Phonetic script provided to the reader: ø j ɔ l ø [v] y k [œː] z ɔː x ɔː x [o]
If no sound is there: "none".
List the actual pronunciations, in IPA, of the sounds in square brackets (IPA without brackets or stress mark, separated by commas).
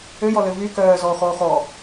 v, œː, ɔ